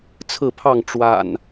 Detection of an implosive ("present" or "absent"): absent